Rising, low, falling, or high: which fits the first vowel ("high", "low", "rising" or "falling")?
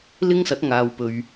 high